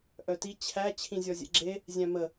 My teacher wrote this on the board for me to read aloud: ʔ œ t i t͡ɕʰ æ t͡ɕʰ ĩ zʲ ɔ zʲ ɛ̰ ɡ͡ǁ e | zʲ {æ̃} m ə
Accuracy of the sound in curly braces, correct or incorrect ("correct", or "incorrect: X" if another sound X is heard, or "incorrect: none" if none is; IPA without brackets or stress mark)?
correct